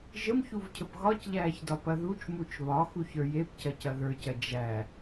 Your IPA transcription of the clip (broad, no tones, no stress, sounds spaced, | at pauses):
ʒ ə m ç u v cʰ ə p ɣ ɒ c ʎ æː ç d ɒ p ɐ ð u t͡ʃ m u t͡ʃ β ɒ x u ç ə˞ j e p c ɐ c ɐ ð ə˞ c ɐ d͡ʒ æ